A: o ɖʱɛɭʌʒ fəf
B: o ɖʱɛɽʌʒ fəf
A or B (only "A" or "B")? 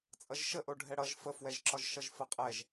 B